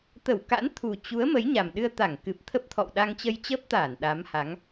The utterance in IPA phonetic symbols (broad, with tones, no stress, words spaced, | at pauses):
t̪ə˧˩wka̰˧˥n t̪ʰu˨˩t͡ɕu˨˦ə̯ mə˨˦jɲa˨˩mɗɨ˧ə̯t̪a˧˩ŋ kɨ˨˩p̚t̪ʰə˦˥p̚t̪ʰɔ̰˧˨w ɗa˧ŋt͡ɕə˧jt͡ɕəː˦˥p̚t̪aː˧˩n ɗa˨˦mha˨˦ŋ